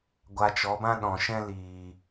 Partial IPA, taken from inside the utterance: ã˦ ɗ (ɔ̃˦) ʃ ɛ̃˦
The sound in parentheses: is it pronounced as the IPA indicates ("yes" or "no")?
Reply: no